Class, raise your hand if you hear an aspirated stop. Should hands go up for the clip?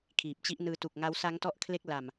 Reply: yes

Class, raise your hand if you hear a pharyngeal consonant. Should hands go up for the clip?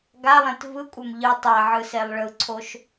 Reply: yes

